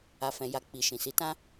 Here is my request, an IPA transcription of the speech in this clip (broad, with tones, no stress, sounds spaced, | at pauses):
a˧ f ɛ̃˧ j a˧ k͡p i˨ ʃ ĩ˨ s i˨˦ t ã˦